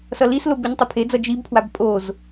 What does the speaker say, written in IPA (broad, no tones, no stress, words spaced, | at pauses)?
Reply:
sʌlislo biɲtˤupʰed͡zʌ d͡ʒibpʰwab pʼoz